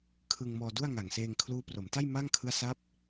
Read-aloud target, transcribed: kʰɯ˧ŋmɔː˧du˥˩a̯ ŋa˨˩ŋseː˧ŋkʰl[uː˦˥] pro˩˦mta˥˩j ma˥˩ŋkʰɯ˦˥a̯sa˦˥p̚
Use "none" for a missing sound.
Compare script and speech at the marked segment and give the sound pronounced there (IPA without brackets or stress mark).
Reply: uː˦˥